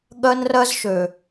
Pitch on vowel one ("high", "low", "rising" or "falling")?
high